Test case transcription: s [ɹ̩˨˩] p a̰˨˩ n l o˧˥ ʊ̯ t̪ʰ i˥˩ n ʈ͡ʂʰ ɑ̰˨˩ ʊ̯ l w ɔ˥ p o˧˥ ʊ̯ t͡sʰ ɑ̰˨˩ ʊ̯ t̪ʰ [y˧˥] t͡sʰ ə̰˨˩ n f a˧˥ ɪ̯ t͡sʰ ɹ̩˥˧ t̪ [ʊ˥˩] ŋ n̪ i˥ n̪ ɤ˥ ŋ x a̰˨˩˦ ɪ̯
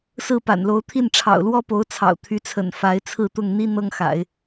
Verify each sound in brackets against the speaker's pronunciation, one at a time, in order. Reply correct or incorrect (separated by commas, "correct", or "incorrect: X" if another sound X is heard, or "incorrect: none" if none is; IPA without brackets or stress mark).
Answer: incorrect: ɹ̩˥˩, correct, correct